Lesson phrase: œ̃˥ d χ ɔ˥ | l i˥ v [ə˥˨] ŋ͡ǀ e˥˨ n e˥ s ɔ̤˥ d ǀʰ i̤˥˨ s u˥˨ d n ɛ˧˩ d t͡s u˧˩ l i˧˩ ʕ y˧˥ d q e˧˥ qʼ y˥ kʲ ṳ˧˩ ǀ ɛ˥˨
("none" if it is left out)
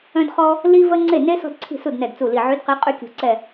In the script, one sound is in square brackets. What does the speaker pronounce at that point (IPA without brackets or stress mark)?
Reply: ə˥